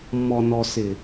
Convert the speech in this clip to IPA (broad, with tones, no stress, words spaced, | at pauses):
mːɔ˨nɔ˨ sɪ˨